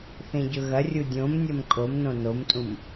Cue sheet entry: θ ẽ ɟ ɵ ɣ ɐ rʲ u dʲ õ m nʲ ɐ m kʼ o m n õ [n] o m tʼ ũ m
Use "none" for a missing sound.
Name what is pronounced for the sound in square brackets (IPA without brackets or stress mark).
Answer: n